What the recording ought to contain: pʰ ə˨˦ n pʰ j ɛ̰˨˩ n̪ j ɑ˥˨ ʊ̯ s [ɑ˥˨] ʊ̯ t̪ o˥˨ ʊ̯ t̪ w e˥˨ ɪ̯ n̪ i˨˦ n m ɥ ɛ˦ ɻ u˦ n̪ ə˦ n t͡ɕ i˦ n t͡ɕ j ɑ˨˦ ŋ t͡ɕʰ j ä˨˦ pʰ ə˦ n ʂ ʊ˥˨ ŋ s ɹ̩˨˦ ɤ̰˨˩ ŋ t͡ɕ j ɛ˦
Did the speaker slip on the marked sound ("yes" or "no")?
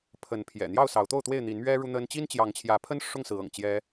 yes